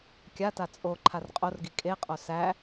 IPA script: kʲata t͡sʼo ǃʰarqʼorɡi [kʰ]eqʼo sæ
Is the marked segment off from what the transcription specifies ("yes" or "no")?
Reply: yes